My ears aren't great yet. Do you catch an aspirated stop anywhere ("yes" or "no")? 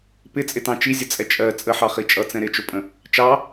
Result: no